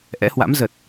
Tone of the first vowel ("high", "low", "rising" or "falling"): rising